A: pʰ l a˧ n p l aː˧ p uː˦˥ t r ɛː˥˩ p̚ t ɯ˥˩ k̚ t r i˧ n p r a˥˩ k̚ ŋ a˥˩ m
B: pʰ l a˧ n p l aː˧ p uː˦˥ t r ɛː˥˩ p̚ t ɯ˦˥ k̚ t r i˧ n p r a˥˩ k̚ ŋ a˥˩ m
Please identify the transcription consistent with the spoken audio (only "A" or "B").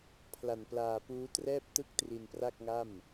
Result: A